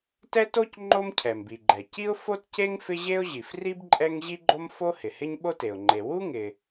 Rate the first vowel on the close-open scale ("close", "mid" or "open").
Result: mid